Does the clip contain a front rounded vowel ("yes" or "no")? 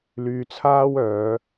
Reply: yes